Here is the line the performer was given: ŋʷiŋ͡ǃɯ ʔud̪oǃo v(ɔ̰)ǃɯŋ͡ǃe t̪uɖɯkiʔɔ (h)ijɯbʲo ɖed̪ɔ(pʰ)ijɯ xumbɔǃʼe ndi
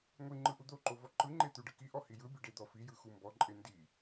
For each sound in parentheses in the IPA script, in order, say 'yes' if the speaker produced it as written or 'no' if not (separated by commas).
no, yes, no